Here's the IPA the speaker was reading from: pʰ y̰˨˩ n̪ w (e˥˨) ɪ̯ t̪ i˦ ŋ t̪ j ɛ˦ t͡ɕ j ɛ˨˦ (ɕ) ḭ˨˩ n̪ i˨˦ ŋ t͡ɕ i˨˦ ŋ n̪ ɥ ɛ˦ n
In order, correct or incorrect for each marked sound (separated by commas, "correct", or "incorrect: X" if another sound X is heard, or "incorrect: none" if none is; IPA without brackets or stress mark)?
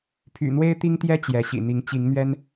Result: incorrect: e˦, correct